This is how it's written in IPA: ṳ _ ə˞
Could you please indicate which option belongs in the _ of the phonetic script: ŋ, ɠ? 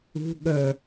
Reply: ɠ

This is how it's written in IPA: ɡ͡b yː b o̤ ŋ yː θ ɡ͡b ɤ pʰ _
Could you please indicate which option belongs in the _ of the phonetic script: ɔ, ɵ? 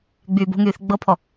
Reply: ɔ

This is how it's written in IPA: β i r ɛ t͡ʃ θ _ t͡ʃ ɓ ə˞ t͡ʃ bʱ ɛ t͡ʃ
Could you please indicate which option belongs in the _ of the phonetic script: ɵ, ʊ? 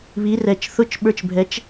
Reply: ʊ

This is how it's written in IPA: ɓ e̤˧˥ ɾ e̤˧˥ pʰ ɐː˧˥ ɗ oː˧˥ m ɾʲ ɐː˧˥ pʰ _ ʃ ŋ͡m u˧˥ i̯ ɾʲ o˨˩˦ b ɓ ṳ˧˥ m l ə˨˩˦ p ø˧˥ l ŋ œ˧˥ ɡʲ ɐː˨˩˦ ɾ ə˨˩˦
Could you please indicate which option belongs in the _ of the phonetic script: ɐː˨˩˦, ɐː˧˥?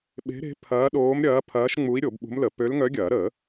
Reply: ɐː˧˥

